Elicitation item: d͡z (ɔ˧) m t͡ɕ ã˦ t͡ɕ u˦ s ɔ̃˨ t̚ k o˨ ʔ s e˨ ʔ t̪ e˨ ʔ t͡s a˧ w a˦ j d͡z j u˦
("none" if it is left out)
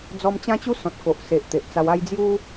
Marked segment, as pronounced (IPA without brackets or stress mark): ɔ˧